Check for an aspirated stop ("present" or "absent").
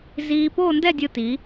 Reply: absent